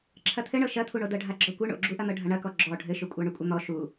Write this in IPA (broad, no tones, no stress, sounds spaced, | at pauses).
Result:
ǁʰ ɐ t̪ʰ ɘ ɳ ɤ ʃ ɐ t̪ʰ u ɳ o d ɤ ɖʱ a ɡ͡ǁ ɔ kʷ ɘ ɳ o̰ ɡ͡ǁ u ʔ ɐ n̪ ɤ ɖʱ ɐ ɳ ɐ k ɔ ɡ͡ǁ ɔ ɖʱ ɘ ʃ ʏ kʷʼ a ɳ ʏ kʷʼ ɐ n̪ ɔ ʃ u